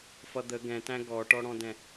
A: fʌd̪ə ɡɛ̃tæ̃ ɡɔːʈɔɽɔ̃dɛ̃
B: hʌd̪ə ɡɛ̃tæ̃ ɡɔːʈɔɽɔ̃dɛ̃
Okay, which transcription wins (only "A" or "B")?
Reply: A